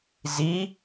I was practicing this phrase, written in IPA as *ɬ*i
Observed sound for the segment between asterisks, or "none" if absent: z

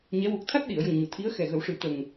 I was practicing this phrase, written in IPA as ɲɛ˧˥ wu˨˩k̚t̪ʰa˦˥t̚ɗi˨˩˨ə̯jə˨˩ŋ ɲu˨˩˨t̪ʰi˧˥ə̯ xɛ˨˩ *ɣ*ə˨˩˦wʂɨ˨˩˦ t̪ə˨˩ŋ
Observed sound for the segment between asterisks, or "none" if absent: ɣ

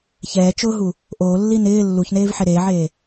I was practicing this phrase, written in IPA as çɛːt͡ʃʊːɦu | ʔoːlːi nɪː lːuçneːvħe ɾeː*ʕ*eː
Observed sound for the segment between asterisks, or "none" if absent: ʕ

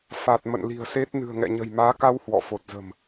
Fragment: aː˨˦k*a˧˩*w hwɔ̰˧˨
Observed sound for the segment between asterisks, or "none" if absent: a˧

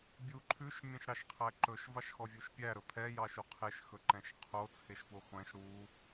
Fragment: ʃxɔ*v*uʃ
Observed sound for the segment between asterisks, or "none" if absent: vʲ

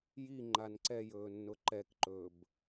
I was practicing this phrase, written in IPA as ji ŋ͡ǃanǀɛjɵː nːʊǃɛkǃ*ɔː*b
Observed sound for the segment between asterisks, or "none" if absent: ɵː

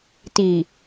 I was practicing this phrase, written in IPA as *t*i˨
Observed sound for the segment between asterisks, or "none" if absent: t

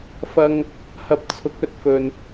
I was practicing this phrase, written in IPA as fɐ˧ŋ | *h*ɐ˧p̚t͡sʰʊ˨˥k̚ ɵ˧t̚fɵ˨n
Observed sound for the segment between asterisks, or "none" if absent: h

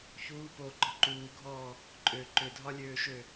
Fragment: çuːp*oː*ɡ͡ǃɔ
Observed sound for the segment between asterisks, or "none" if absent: oː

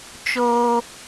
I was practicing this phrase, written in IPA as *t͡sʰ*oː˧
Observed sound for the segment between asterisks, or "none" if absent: t͡ʃ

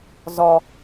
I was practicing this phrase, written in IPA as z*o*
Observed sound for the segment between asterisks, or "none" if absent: ɔ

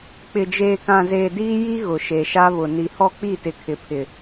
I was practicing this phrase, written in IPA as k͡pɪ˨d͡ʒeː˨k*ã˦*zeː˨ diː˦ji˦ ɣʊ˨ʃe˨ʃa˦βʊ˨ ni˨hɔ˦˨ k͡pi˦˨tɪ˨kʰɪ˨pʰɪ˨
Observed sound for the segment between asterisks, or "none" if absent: ã˨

